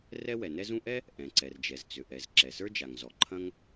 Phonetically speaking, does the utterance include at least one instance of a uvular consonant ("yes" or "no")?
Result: no